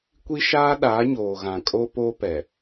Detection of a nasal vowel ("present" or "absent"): present